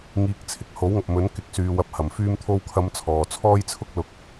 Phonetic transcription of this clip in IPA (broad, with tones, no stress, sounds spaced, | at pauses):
ŋ iː˨˥ k̚ t͡sʰ ɪ˨ k̚ h o˨˥ w ŋ ɐ˨ p̚ m ɵ˨˥ n k ɪ˨˥ k̚ s yː˨ w ɐ˨˥ p̚ h ɐ˨˩ m f yː˧ m t̪ʰ o˧ w kʰ ɐ˨˧ m t͡sʰ ɔː˨ t͡sʰ ɔː˥ j t͡sʰ ʊ˥ k̚ l ʊ˨ k̚